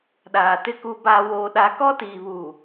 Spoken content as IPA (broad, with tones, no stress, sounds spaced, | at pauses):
ɗ aː˨ t ɪ˦ k u˦ b aː˦ w oː˦ ɗ a˦ k ɔ˦ t iː˨ β u˨